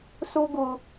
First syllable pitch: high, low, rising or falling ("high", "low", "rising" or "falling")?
high